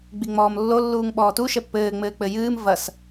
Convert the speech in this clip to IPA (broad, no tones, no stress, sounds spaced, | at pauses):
ɡ͡b i ŋ͡m ɔː m lː o lː uː ŋ ɓ ɔː t u ʃ ɛ pː ɘː ŋ͡m ɘː k͡p ɘ j ɨː m v ɐ s